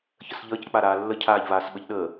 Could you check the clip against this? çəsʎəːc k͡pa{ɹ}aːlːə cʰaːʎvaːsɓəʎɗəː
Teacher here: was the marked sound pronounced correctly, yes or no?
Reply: no